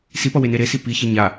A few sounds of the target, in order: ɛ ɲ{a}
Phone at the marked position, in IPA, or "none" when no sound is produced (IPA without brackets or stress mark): a